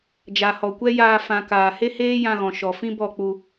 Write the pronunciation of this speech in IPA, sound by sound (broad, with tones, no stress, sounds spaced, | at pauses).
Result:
d͡ʒ a˨ h ɔ˨ kʷ ɛ˦ j aː˧ f ã˨ k aː˨ h e˦ h eː˦ j ã˧ ɣ ɔ̃˨ ʃ ɔ˨ f ĩ˦ b ɔ˦˨ k͡p u˧